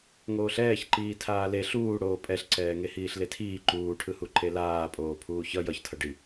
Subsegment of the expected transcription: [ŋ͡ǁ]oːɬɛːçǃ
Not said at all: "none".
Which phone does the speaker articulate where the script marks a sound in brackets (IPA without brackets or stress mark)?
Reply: ŋ